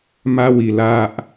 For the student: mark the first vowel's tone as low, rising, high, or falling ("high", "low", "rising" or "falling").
high